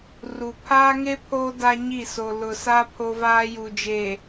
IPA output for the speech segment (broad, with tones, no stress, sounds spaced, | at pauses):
r u˨ pʰ aː˦ ŋ e˦ pʰ oː˦ d a˦ ɲ i˦˨ s o˨ l ʊ˨ s a˦ pʰ o˦ v aː˦ j u˨ d͡ʒ e˨